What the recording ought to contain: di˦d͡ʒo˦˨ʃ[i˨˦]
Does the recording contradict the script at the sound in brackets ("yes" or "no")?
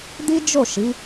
no